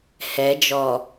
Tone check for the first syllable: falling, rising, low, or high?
rising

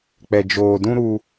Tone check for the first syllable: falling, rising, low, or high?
low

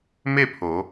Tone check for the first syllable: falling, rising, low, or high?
falling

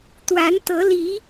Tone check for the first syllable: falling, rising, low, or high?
rising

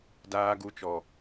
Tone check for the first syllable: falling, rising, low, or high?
high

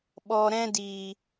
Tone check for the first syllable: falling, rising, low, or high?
low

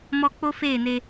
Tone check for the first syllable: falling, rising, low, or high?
high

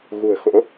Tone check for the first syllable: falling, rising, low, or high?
low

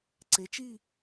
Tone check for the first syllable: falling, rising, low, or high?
rising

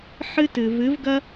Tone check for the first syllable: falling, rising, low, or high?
high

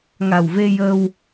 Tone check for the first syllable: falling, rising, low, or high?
low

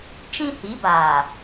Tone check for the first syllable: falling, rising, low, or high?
high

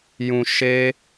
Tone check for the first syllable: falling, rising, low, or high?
low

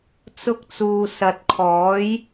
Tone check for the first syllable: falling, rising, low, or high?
high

